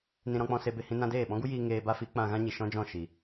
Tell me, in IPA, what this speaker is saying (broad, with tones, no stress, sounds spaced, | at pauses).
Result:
n ĩ˧ ɾ ɔ̃˧ k͡p ɔ̃˧ s e˧ b e˧ h ĩ˦ n ã˦ d eː˦˨ ɓ ɔ̃˦ ɡ u˦ j iː˧ ŋ eː˧ b a˦ f i˨˦ k͡p ã˧ ɣ ã˦ ɲ i˨ ʃ ɔ̃˦ d͡ʒ ɔ̃˦˨ ʃ i˨